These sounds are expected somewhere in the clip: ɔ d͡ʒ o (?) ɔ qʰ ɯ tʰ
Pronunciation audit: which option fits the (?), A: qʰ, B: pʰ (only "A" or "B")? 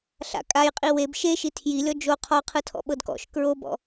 A